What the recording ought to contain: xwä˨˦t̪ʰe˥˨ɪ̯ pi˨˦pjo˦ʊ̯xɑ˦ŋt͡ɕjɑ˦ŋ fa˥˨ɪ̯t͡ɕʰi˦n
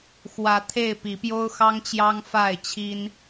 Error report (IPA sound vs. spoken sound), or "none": none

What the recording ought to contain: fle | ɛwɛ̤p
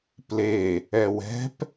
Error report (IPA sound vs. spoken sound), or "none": f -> p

